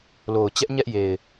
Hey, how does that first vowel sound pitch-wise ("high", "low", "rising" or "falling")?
low